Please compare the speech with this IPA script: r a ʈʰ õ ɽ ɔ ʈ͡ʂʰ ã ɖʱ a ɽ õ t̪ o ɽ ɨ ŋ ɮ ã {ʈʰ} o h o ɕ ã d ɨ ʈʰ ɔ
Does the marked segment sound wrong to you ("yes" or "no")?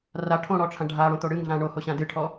yes